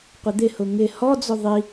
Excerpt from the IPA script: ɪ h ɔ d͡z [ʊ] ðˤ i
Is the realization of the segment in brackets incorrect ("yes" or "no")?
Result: no